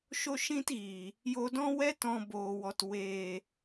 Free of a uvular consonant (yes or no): yes